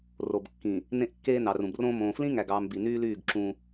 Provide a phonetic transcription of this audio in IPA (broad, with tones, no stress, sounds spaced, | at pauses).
r o˨ b kː ĩ˨ | n ẽ˦ ʔ kː eː˦ n ɑ˨ r ũ˨ b r õː˦ m õː˨ f l ĩ˦ ŋ æ˨ ɡ ɑː˨ m b i˨ n yː˦ l yː˦˨ ɡ ǁ ũ˦